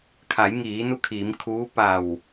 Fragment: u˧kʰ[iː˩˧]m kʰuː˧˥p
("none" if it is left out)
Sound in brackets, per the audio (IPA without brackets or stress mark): iː˩˧